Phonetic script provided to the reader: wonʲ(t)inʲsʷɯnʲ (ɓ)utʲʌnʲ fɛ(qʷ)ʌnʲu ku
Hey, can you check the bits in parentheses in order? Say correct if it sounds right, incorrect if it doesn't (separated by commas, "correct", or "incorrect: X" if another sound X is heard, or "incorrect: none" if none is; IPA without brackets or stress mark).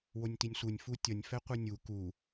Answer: correct, incorrect: f, correct